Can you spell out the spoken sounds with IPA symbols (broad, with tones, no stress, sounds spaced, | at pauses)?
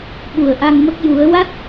ɓ u˨˩ ə̯ ʔ a˧ ŋ m ə˦˥ k̚ j u˨˩˦ ə̯ w a˦˥ t̚